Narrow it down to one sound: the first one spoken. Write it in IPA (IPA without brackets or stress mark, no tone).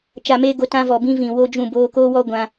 t͡ʃ